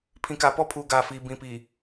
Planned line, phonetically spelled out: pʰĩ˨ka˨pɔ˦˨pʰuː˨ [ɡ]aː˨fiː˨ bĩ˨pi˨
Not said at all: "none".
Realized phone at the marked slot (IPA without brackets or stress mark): ɡ